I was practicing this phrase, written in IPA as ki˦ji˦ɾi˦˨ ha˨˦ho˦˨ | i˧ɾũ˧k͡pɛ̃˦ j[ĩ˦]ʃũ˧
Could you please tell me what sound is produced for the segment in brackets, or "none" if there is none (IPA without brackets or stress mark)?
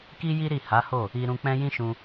ĩ˦